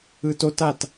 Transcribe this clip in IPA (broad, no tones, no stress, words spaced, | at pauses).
ɯtotat